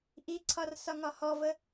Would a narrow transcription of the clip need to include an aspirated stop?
yes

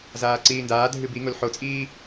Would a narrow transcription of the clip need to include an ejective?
yes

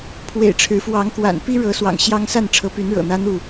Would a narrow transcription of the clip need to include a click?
no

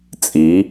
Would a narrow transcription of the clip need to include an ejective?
yes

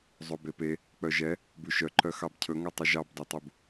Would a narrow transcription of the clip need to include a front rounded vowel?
yes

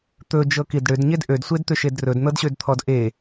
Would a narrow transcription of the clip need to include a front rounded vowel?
yes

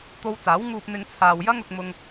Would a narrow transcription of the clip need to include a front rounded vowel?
no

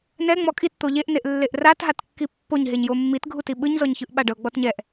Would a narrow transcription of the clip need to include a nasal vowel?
no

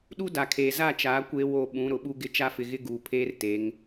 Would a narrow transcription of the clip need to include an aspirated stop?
yes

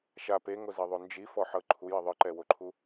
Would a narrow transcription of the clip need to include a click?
yes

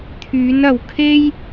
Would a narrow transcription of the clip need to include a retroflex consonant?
no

